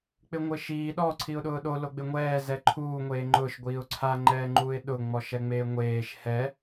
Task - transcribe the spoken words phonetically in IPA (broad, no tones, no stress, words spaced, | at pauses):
k͡pɪŋʷɪʃiː ɗɔ ǀʰiʊ̯ɗʊːɗo loɡ͡bɪŋʷɛː zɛǃʰuː ŋʷeːŋ͡ǃʊʃ ɡʷiːʊ̯ǀʰa ŋ͡ǃɛːŋ͡ǃuːɪ̯ɗʊ ŋ͡mɔʃɛŋ͡meːŋʷeːʃ hɛ